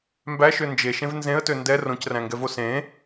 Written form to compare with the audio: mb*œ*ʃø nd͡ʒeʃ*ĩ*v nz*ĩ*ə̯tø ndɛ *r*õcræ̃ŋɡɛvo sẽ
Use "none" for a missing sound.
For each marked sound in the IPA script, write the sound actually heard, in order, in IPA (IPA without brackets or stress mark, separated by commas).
æ, ẽ, ẽ, r